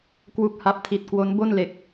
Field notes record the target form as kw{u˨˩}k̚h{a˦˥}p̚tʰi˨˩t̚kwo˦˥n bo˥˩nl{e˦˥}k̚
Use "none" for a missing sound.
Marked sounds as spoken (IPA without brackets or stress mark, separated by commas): u˦˥, a˦˥, e˨˩